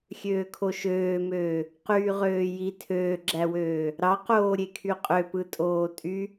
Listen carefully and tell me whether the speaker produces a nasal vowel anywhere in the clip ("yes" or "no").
no